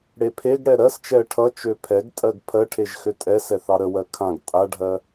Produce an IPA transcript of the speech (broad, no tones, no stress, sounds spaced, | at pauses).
ɽ e pʰ e ɡ ɽ ɛ ɾ ɜ s t͡ʃ ɛ ə̯ ʈʰ ʌ t͡ʃ ø pʰ ɛ ɡ tʼ ɜ ɡ pʰ ɜ ʈʰ e ʒ x ø tʼ ɛ s ɛ θ ɑ ɾ ə w ɜ kʰ ã ɡ tʼ a ɖʱ ɜ